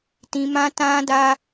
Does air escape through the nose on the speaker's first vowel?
yes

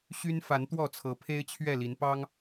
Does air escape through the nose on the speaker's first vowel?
no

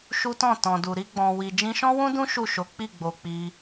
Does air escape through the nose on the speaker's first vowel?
no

